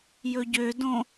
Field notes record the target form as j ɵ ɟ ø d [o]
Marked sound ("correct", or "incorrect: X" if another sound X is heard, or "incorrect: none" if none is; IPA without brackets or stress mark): incorrect: õ